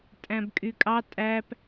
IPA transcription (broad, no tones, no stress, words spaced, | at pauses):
tʼæ̃bkʼykʼɑ tʼæp